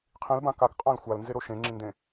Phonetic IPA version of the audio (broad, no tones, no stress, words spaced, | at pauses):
qʰĩlbã kakqʼãl xʷalnzeɾo ʃẽŋ͡ǁĩndẽ